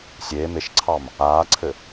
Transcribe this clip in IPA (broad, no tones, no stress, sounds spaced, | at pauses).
sʲ eː m e ʃ ǀʰ ɑ m | aː ǀʰ ɘ